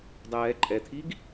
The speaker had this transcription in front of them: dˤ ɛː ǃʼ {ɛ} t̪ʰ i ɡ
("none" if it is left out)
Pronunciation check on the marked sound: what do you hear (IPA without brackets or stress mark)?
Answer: ɛ